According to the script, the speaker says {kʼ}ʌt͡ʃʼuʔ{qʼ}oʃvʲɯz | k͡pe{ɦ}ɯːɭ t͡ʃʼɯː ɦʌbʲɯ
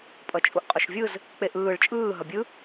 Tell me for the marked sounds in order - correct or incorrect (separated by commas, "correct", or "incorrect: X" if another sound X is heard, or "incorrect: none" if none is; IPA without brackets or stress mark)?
incorrect: pʼ, correct, incorrect: ʔ